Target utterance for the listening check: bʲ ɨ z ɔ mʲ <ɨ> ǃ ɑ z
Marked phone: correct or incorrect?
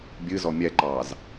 incorrect: ɛ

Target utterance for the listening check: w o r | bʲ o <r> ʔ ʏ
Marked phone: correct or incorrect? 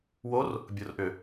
correct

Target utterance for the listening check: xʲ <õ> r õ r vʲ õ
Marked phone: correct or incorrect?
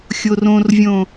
incorrect: o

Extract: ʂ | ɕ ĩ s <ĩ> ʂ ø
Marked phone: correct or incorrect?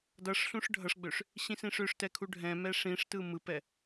correct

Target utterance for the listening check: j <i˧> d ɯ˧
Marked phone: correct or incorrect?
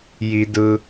correct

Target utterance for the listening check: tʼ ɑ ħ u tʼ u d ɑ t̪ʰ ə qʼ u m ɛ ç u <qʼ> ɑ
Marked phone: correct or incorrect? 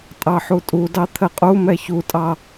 incorrect: tʼ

